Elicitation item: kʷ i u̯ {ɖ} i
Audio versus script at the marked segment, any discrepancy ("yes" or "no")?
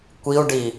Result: no